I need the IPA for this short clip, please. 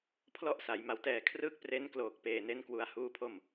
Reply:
pʰ l ɔ˥˩ ʔ s a˩˦ j m a˩˦ w t ɛː˨˩ kʰ r ɯː˥˩ k̚ p r e˦˥ n k l oː˨˩ k̚ p eː˨˩ n e˦˥ n k w u˧ a̯ h uː˥˩ pʰ o˥˩ m

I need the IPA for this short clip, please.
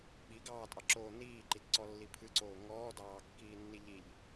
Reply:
ɓ i ɡ ɑː tʼ ɑ ǁ oː n iː ǃ i t ǀ ɔ lː i pʰ ɨ ǀ oː ŋ ɔː d ɑː kː iː nː i ʎ i ʎ

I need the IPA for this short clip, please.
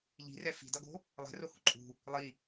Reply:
ʎ i̤ r ɛ f i̤ d ʌ ɡ o̤ | lˠ ɛ̤ r o h ṳ ǃʼ ṳ | lˠ i

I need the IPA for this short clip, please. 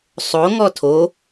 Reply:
sˤ o ŋ ɔ tʰ o

